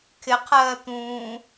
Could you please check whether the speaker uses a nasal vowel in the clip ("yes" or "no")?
yes